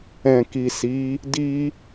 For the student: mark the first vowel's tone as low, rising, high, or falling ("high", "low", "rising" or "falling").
low